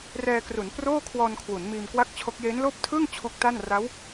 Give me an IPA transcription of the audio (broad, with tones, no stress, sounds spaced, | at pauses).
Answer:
r ɛː˧ k r u˩˦ n p r oː˥˩ kʰ w ɔː˧ n kʰ w u˩˦ n m iː˧ m k w a˥˩ k̚ t͡ɕʰ o˦˥ k̚ j eː˦˥ n l oː˥˩ p̚ tʰ ɯː˥˩ ŋ t͡ɕʰ u˦˥ k̚ t a˥˩ n r a˦˥ w